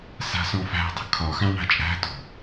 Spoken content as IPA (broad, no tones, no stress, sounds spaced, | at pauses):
s a̤ s ɔ̃ f æ̤ dˤ ə̤ kʰ ɒ x ã ɳ a̤ t͡ʃʼ æ̤ t ɔ̤